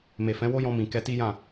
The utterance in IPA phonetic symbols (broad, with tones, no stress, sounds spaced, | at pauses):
m e˨ f ɛ̃˨˦ w o˦ j ɔ̃˧ m ĩ˨ k ɛ˧ t i˦ j ã˦˨